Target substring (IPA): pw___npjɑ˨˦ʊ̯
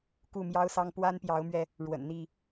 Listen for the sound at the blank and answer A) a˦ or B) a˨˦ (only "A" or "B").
A